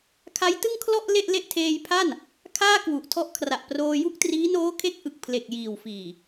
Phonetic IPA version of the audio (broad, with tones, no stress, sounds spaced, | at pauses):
kʰ a˦˥ j t ɯ˥˩ ŋ kʰ l ɔ˥˩ ʔ l e˥˩ ʔ l e˥˩ ʔ tʰ eː˧ j pʰ a˥˩ n | kʰ aː˥˩ k w u˨˩ ʔ tʰ ɔ˦˥ ʔ kʰ r a˨˩ ʔ p r oː˧ j u˥˩ k̚ t r iː˦˥ n oː˦˥ kʰ e˦˥ k̚ ʔ ɯ˨˩ k̚ pʰ l e˨˩ k̚ j iː˨˩ w f iː˨˩